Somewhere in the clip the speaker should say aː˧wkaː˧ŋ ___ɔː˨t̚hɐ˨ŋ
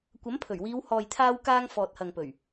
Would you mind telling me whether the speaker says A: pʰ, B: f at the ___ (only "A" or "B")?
B